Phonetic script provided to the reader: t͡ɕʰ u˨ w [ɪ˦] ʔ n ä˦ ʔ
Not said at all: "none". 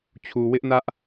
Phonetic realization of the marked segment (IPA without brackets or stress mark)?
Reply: ɪ˦